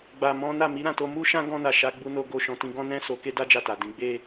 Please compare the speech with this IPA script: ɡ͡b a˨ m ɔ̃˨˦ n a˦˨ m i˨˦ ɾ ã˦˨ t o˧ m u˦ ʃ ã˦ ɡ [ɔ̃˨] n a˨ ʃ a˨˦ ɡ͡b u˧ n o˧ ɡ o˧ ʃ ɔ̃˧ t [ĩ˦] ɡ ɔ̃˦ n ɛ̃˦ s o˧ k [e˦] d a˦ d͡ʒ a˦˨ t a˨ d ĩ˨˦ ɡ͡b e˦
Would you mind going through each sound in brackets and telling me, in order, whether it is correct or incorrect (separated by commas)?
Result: incorrect, correct, correct